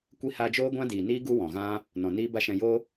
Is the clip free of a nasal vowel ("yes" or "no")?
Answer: no